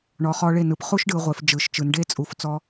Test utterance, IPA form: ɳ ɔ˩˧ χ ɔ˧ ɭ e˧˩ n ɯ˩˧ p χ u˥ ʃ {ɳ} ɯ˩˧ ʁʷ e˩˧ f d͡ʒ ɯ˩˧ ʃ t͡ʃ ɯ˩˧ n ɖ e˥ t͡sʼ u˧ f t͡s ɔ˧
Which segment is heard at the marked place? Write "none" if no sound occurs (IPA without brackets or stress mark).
ɖ